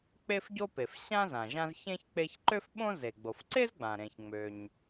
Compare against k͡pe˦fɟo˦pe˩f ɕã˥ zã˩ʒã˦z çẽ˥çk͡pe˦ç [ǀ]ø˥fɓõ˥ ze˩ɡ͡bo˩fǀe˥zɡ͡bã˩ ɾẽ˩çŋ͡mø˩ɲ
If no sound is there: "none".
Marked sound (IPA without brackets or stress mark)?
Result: ǃ